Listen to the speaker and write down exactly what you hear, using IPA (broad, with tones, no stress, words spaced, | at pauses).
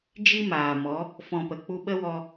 d͡ʒi˦maː˨mɔ˨˦ | fɔ̃˧pə˨ k͡pu˧ɓə˦wɔ˧